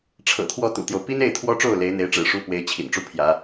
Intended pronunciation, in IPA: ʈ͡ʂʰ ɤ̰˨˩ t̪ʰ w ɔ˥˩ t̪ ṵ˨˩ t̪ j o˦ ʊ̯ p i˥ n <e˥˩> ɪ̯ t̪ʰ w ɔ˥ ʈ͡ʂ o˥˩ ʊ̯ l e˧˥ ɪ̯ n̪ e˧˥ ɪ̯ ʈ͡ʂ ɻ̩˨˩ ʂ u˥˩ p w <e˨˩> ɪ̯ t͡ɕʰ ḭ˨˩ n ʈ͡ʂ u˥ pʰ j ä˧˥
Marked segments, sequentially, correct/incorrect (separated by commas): correct, incorrect